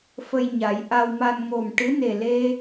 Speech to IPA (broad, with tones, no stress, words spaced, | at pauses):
fə˧j ɲa˨˩˦j ʔa˧wma˧n ŋo˨˩mʈɨ˧˥ ne˨˩le˧